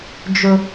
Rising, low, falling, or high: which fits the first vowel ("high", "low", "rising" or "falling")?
high